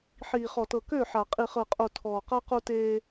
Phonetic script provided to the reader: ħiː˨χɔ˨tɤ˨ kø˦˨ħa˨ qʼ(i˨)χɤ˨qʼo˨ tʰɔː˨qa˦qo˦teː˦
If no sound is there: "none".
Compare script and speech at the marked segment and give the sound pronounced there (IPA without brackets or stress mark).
i˨